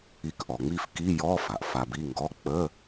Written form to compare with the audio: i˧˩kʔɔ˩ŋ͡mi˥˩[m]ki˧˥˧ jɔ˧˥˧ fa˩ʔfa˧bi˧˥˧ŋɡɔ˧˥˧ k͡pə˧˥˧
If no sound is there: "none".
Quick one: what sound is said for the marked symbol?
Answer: f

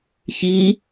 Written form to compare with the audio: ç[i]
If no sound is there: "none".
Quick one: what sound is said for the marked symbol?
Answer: i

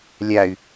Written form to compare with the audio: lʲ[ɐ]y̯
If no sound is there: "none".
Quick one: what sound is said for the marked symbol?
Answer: a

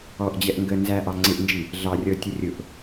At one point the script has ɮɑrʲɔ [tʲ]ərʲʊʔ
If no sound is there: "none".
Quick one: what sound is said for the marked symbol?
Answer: tʲ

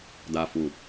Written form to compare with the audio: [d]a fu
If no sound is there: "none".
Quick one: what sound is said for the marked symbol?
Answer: d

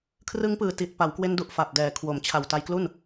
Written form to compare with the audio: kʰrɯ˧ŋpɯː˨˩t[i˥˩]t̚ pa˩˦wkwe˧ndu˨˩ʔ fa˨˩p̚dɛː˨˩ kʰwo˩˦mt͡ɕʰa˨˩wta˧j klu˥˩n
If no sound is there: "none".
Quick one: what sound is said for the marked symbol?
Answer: i˨˩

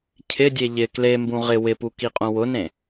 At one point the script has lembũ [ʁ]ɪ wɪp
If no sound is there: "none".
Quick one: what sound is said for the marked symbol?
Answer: ʁ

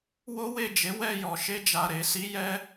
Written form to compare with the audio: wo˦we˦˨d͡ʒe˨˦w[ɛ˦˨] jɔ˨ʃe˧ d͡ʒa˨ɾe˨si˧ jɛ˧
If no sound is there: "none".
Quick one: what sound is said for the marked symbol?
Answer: ɛ˦˨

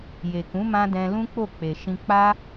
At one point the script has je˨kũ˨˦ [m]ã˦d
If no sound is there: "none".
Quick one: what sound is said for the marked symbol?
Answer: m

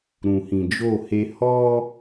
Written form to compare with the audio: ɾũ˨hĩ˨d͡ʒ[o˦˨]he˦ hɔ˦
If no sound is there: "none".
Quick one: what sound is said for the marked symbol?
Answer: o˦˨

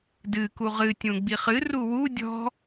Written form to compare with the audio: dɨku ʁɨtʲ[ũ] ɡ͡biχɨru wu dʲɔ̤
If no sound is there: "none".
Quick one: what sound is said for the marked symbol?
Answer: ũ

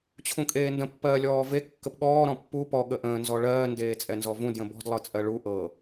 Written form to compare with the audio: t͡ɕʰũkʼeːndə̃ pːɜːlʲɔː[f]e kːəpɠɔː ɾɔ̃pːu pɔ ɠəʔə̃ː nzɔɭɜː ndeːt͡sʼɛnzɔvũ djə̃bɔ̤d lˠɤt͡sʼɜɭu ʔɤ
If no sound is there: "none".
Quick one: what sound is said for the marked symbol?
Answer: v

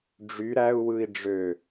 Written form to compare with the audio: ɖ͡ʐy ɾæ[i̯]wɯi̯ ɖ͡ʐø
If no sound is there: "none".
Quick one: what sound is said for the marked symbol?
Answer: u̯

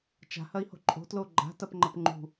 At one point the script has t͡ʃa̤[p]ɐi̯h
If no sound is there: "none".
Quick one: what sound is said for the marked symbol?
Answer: h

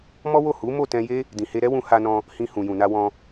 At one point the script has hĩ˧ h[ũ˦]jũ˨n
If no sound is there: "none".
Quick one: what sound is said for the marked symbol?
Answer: ũ˨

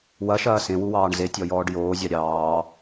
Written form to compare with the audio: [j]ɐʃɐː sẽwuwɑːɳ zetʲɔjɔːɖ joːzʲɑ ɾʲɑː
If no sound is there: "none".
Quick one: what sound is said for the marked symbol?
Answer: w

